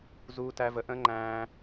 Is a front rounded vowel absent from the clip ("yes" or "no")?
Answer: yes